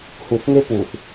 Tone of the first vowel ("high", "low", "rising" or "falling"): low